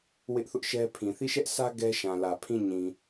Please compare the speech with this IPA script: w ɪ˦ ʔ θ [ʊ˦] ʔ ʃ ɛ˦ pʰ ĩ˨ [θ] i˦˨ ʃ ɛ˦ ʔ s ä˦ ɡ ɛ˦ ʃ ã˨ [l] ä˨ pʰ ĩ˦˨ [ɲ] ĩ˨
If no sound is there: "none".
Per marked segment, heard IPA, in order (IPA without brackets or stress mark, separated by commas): ʊ˦, θ, l, ɲ